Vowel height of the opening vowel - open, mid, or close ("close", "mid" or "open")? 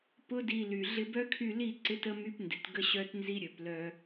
close